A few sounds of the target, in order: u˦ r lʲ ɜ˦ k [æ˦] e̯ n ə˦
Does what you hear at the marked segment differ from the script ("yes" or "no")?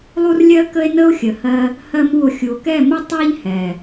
yes